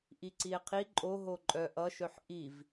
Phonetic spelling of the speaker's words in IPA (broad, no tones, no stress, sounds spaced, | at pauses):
ʔ i ǀ i e̯ qʰ i ǃʼ o ɦ o ǃʼ œ ʔ ʌ ʃ œ ħ ʔ i v